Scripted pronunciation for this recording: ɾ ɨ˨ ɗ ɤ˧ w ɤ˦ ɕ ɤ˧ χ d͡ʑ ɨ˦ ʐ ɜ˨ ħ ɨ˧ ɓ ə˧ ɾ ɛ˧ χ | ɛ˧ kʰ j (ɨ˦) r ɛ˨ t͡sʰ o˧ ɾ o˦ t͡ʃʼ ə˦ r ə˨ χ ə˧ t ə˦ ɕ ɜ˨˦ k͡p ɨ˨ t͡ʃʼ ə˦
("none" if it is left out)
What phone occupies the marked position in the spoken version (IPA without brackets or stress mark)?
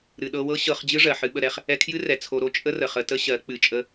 ɨ˦